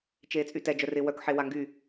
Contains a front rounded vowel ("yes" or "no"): yes